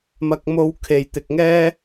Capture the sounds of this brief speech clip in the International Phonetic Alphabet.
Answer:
mɐ˧k̚mo˧wkʰe˨j t̪ɪ˨k̚ŋɛː˥

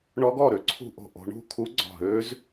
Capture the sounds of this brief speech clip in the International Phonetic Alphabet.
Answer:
ɳɔ˦˥ɡɔ˥˨ɾø˦˥ ǀʰṳ˥˨ʔo̤˥˨ ʔo̤˦˥ ɳṳ˥˨kʰu˦˥ɡ͡ǀɔ̤˧˩ɦø˦˥z

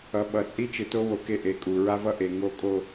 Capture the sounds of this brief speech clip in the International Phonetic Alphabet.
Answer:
ʌ˨ɓʌ˨ t͡sʼi˦t͡ʃɯ˨to˦wo˨ ke˦ʔe˨kʼu˨ ɹa˦vʌ˦ʔe˨ ŋo˦ kʼo˦

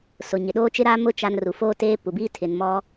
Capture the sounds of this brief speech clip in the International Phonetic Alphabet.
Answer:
sʊ˨ ɲɪ˨ɗoː˦ t͡ʃɪ˦ɾaː˦mʊ˦ t͡ʃa˦nru˨ foː˦teː˦pu˨biː˦ tʰɪ˨nmɔ˦

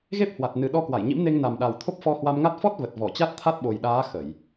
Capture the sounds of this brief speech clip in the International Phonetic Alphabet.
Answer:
ɣe˦˥p̚hwa˨˩t̚nɨ˨˩ ɗɔ˧kwa˧˩jɲḭ˧˥m ne˧ŋna˨˩mɗa˨˩wt̪ʰo˦˥p̚ fɔ˧hwa˧mŋa˦˥t̚ fɔ˦˥t̚ və˨˩t̚vɔ˧˩t͡ɕa˦˥t̚t̪ʰa˦˥t̚ ɓo˨˩jɗaː˨˦ xə˧˩˨j

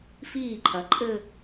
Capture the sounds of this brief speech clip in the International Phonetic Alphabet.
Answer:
fiː˥˩ǃʰɐ˩˧ǃʼɘ˥˧

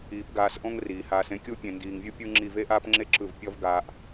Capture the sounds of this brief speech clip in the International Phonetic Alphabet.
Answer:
iː˨˦pɡaː˧sʔõ˦ŋ riː˨haː˧sẽ˦kʲu˦ pʲẽ˨ndiː˨ŋvʲu˦ pʲɯ˦ŋ͡ǁi˦˨ ve˦ʔaː˦pŋ͡ǁe˦ ǁɯ˦˨v pʲʌ˦v ɡaː˦ʔ

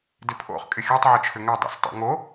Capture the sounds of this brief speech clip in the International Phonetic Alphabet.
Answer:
dɪpʰo̰χ kʼɪxʲutˤ ʕʏt͡ʃʰʏŋœ dˤɛ̰stˤṵŋo

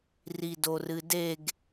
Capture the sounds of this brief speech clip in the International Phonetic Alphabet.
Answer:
ridorɨdeɡ

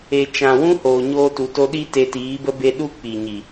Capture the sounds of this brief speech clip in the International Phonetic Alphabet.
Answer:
e˨ t͡ʃã˨wũ˦ hoː˨ɲoː˧tu˨ to˧ɗi˦ te˧tiː˨˦bə˦be˦ ɗu˦ k͡pi˨ɲi˨

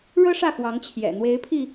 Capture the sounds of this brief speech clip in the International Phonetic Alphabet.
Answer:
ɻɤ˥ ʂä˥˩xwɑ˧˥ŋt͡ɕʰjɛ̰˨˩ n̪we˧˥ɪ̯pʰi˧

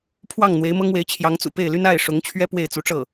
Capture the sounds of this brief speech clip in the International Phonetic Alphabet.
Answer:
pʰwɑ˥˩ŋ n̪we˧˥ɪ̯mɤ˥ŋwe˧˥ɪ̯t͡ɕʰjɑ˧˥ŋ t͡sṵ˨˩pe˥˩ɪ̯ly˥n a˥˩ɪ̯ʂʊ˧˥ŋt͡ɕʰɥɛ˥ pwe˥˩ɪ̯t͡su˧˥ʈ͡ʂɤ˥˩

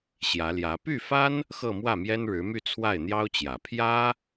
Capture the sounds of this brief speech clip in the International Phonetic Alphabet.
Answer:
ɕjä˧˥ljä˧˥ py˥˩fa˥n | xɤ˥˧mwä˥˩mjɛ˥nɻɻ̩˧˥ my˥˧ t͡sʰwa˥˩ɪ̯n̪jɑ˥ʊ̯t͡ɕjä˨˩ pʰjä˥

